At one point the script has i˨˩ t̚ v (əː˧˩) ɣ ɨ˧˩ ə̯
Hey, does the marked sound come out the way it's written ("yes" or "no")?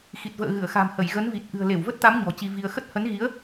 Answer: no